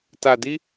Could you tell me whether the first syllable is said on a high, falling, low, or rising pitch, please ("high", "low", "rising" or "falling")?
low